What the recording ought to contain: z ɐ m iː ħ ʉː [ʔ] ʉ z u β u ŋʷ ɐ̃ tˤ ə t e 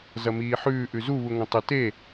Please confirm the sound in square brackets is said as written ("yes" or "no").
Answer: yes